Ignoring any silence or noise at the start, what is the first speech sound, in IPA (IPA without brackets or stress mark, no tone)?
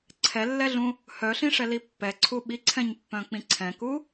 ǀʰ